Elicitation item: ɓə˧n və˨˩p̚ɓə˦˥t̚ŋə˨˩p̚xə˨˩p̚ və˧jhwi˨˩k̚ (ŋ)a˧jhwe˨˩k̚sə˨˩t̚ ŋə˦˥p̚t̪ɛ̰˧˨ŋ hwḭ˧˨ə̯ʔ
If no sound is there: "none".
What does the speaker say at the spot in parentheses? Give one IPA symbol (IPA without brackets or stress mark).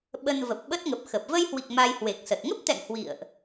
m